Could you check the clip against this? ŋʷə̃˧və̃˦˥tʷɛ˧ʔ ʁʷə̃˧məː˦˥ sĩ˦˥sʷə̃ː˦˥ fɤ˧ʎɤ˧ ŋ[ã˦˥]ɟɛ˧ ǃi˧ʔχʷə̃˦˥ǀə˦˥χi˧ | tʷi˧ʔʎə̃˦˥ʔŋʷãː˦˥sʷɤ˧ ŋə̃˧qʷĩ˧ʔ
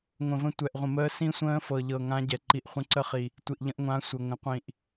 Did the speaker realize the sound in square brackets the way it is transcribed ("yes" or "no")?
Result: yes